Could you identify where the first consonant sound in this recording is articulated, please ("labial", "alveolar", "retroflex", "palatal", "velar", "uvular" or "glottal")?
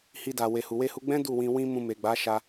glottal